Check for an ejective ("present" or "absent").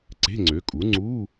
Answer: present